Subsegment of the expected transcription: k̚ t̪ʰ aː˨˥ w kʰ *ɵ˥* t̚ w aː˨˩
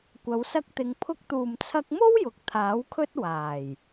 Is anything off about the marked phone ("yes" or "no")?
no